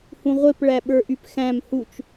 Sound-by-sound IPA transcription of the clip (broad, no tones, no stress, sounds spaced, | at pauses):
h ũ ʁʷ e p ɭ æ ɓ ə˞ ʔ y p x æ̃ m h u t͡ʃ